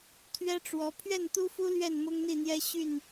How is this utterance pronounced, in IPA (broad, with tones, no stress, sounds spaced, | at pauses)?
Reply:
t̪ʰ ɥ ɛ˦ ʈ͡ʂ w ɔ˨˦ pʰ ɥ ɛ˥˨ n t̪ u˦ f u˦ l ɥ ɛ˥˨ n m ʊ˦ ŋ n̪ i˥˨ n̪ j ɛ˦ ɕ y˥˨ n